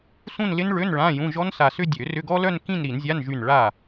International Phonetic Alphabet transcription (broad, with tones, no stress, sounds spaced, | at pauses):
s ũ˥˧ n l ɪ˦˥ n ɭ ø˧˥˧ n ɭ ã˧˥˧ j ũ˧˥˧ ʒ ɔ˦˥ n s a˧˩ s ʏ˥˧ dʲ ø˨˩˦ r ʏ˧˥˧ ɡ ɔ˦˥ l œ˥˧ n k ĩ˥˧ n ɾ i˨˩˦ n zʲ a˧˥˧ n ʒ y˧˩ n ɭ a˧˩